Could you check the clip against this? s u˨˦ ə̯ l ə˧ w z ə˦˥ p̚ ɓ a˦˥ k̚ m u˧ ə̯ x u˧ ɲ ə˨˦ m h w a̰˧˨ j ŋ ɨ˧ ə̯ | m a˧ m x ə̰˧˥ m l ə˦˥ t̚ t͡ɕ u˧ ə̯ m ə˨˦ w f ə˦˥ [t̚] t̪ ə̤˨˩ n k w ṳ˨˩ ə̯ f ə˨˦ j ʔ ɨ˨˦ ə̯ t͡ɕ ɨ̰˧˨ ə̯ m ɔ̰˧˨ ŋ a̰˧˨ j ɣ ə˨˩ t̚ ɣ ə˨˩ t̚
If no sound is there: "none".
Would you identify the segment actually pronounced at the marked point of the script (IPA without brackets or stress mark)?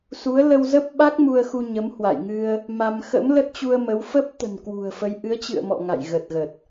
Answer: p̚